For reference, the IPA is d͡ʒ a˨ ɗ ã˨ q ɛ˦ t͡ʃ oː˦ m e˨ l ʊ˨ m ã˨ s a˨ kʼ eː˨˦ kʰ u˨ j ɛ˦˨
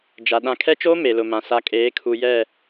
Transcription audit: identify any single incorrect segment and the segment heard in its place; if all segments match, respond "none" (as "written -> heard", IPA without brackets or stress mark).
q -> kʰ